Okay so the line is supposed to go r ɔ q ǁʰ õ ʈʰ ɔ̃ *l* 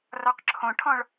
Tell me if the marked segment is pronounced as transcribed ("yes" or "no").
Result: no